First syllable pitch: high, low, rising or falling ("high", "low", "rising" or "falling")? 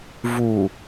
low